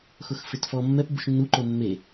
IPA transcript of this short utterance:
x ʊ x f ɪ t f ɔ mː ɛ p b ṵ ʃ nː u ǃ o mː e

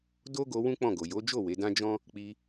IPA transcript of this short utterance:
d o˦ ɡ o˧ w ũ˦ k͡p ɔ̃˦˨ ɡ o˨ j o˨˦ d͡ʒ o˦˨ w e˨˦ d ã˦ d͡ʒ ɔ̃˦ | k͡p i˧

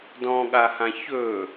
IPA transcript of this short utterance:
d ɔ̃ ɠ a h ã ç ɵː

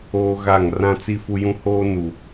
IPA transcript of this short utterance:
oː˦ ɣ a˦˨ ŋ r ã˦ t͡s i˦ f u˦ j ũ˦ h oː˦ n u˨

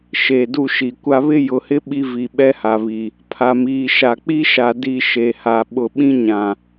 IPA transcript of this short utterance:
ʃ e˨ d u˦˨ ʃ i˨ kʷ a˦ β ɪ˦ j ʊ˨ h ɪ˦ ɓ i˦ v i˨ ɓ ɛ˦ h a˨ β i˨ | pʰ a˨ m iː˨ ʃ a˨ k͡p i˦ ʃ a˨ d i˦˨ ʃ e˨ h a˨ ɓ ʊ˨ ɓ ĩ˦ ɲ ã˨

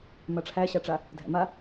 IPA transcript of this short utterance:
m a ʈ͡ʂʰ æ ɕ a ʈ͡ʂ a | dʱ æ̰ m a

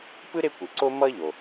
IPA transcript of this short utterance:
p ɯ˥ ɾ e˦ kʷ ɯ˩ ǀ o˦ m ʌ˦ ʎ o˩

